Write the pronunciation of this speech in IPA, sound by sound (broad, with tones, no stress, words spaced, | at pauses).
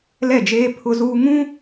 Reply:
lɛ˦˨d͡ʒeː˦ pʰʊ˦zuː˦ ŋũ˦